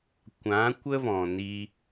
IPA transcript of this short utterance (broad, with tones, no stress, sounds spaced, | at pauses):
kʷ ã˨˦ kʷ ə˦ v ɔ̃˨ n i˧